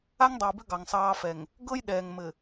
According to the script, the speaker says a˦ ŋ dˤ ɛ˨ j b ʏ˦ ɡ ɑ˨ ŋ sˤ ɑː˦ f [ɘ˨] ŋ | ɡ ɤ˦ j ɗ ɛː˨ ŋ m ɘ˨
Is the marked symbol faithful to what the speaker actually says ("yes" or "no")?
no